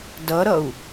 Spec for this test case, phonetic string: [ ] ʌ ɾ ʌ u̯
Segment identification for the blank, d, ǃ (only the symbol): d